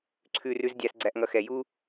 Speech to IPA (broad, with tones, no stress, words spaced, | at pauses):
ǀʰʉ˦r ʉ˥zdʲæ˦sɡ͡ǀæ˦ʔŋʌ˦ xɛ˨ju˥